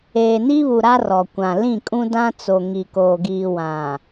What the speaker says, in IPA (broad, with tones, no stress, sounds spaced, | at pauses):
eː˨ n i˦ β u˨ ɾ a˦ r ɔ˨ kʷ ã˨ l ĩ˦˨ kʼ ũ˦ d ã˦ t͡s o˨ ŋ i˨ k oː˨ ɡ iː˨ w ã˨